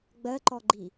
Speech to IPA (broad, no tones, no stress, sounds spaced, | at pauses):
ɡ͡b ɜ ǃ ɔ ɡ͡ǃ i